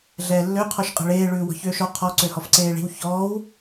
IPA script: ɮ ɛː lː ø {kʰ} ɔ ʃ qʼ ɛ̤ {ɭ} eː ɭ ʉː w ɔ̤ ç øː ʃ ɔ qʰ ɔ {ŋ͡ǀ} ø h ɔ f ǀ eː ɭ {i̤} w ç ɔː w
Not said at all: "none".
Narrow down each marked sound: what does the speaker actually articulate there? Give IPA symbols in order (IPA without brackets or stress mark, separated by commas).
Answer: qʰ, ɭ, ǀ, i̤